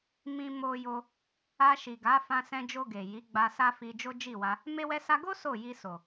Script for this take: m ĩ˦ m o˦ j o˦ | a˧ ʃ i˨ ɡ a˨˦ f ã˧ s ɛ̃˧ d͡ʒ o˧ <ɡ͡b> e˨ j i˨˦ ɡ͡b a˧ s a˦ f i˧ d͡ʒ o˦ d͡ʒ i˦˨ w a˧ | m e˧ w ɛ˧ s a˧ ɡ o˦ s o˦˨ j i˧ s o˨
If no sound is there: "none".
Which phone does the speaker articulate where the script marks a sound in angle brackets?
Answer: ɡ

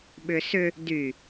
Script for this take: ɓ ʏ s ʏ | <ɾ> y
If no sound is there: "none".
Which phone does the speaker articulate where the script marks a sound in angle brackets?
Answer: d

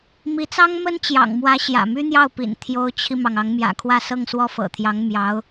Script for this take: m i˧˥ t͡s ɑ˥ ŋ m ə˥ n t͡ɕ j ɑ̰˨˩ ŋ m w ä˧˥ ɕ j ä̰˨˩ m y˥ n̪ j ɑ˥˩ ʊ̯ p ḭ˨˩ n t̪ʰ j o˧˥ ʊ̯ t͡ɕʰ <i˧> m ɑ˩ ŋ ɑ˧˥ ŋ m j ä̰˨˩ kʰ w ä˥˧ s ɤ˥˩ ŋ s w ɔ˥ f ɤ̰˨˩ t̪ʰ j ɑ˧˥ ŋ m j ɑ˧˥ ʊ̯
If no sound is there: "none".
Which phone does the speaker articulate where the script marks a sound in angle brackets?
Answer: i˧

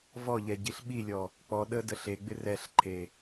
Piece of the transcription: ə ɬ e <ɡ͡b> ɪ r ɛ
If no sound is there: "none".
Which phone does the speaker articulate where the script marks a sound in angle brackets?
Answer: ɡ͡b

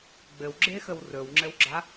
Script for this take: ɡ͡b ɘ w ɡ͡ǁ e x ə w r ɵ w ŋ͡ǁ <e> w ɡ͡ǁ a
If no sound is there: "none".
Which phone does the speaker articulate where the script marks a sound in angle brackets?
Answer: ɘ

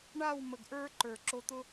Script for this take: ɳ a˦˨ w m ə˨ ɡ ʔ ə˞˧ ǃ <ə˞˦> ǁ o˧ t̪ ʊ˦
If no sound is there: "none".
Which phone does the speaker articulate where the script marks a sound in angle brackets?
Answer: ə˞˨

